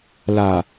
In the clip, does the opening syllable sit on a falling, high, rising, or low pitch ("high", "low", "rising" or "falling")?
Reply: low